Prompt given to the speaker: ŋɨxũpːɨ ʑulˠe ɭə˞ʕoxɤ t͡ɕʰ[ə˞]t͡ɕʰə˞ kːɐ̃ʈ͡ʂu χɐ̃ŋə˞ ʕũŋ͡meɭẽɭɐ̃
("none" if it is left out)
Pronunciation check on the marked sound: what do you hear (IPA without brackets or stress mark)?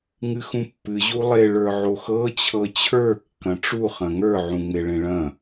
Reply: ɤ